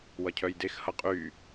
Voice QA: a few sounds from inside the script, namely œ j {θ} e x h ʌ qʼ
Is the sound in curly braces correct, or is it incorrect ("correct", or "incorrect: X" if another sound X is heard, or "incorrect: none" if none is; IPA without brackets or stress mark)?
incorrect: d